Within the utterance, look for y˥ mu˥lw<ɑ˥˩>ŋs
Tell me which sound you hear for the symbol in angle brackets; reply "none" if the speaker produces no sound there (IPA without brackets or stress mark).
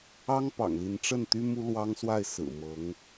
ɑ˥